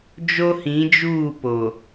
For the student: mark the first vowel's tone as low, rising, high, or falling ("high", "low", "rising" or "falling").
high